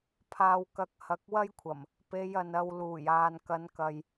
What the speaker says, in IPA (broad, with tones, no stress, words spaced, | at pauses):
pʰaː˨wkɐ˨˥k̚ hɐ˨˥k̚wɐ˥jkʷʰɐ˨˩m | pe˨˧jɐ˨n ɐ˧w luː˨˩jaː˨n kɐ˨˧nkɐ˨j